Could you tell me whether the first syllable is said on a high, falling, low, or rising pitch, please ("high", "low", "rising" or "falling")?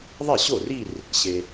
falling